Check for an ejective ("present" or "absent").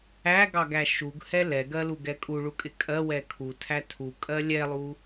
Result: present